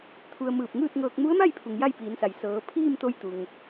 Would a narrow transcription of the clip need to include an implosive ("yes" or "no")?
no